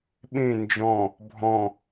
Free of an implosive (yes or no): no